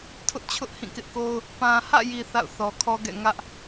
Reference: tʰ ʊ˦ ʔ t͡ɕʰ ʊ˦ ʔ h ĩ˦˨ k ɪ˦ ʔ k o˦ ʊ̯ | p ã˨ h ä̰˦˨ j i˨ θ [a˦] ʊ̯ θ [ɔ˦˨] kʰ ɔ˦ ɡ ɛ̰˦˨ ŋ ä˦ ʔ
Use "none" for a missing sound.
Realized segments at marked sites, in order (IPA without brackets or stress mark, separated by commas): a̰˦˨, ɔ˨